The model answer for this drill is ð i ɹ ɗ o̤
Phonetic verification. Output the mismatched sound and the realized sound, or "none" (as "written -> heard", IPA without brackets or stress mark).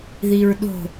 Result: none